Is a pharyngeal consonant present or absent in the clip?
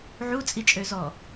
present